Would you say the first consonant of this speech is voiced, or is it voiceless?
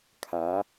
voiceless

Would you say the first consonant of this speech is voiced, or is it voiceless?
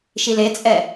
voiceless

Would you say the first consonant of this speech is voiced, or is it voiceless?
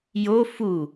voiced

